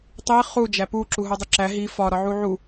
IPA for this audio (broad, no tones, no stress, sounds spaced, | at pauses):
tˤ i χ u d͡ʒ æ p u ǁ u ɦ o dˤ e ǁ æ ɦ i f ɒ ɾ ɒ ʕ u ʕ u